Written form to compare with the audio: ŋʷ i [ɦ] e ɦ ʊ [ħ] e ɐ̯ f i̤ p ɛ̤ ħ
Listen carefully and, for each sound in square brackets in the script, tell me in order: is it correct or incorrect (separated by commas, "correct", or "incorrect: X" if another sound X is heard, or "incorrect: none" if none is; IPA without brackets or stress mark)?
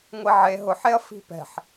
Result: incorrect: ʕ, correct